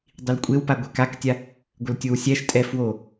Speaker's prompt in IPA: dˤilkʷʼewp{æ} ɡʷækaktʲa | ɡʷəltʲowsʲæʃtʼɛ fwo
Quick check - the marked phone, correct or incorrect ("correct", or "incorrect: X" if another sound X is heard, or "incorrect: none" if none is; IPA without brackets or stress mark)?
incorrect: a